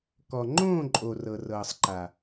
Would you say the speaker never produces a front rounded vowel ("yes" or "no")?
yes